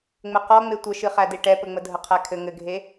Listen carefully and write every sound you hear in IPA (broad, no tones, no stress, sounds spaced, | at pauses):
ŋ͡m ɘ q ɔ ŋ͡m e tʷ ə ʃ ɨ χ æ d e ʈ ɛ p ə ŋ͡m ə dʱ ə qʰ æ kʰ ɘ ŋ ɘ ɡʱ e